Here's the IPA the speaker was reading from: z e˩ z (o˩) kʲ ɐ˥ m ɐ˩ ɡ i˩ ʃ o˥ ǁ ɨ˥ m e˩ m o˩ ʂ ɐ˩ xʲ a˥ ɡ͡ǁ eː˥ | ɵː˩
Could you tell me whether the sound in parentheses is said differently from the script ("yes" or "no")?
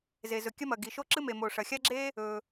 yes